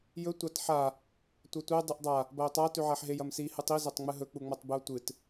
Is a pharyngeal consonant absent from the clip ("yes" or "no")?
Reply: no